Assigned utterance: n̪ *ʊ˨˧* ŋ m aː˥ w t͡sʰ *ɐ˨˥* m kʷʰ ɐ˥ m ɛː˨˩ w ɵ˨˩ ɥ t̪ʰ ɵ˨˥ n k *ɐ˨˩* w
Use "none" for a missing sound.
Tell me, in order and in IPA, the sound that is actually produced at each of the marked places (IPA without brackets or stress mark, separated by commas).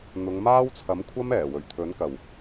ʊ˨˧, ɐ˨˥, ɐ˨˩